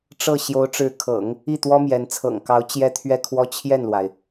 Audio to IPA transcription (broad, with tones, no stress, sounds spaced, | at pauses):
ʈ͡ʂ ɤ˥˩ ɕ j o˧˥ ʊ̯ ʈ͡ʂ ɻ̩˧˥ kʰ ɤ̰˨˩˦ ŋ | i˥˩ t̪ w ɔ˥ m j ɛ˧˥ n t͡sʰ ɤ̰˨˩ ŋ k ɑ˧˥ ʊ̯ t͡ɕ j ɛ˥ t̪ʰ ɥ ɛ˥˩ kʰ w ɔ˥ t͡ɕʰ j ɛ˥˩ n l w a˩ ɪ̯